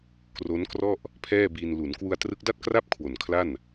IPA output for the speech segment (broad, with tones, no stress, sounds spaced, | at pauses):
k r o˦˥ n k r ɔ˥˩ ʔ | pʰ ɛː˥˩ b iː˧ n l u˩˦ n k w u˧ a̯ t r ɯ˦˥ k̚ d a˥˩ t̚ k r a˥˩ p̚ kʰ w o˨˩ n kʰ l a˥˩ n